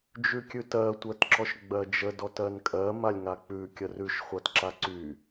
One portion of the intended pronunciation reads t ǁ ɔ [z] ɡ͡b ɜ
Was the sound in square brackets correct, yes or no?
no